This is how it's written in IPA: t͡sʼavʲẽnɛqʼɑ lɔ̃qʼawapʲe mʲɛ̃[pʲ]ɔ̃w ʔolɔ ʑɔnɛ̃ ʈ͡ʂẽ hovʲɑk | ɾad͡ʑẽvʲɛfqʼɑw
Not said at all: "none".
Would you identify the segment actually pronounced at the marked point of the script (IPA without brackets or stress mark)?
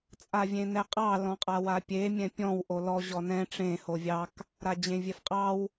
pʲ